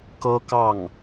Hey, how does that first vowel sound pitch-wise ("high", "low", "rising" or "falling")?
high